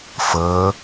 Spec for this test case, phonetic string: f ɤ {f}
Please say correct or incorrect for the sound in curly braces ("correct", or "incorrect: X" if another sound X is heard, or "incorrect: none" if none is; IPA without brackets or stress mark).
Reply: incorrect: none